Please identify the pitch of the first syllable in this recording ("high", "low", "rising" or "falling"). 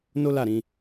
high